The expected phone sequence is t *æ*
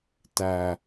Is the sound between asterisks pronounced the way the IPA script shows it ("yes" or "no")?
yes